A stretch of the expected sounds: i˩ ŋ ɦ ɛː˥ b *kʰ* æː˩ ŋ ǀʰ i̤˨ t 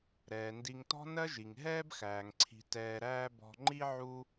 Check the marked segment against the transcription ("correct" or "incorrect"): incorrect